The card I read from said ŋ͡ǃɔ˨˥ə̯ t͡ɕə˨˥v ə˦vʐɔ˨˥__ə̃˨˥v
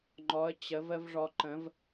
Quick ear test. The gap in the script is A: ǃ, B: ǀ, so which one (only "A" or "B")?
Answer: A